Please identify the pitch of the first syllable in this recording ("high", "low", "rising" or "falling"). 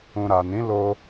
low